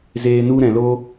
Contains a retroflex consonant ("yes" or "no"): no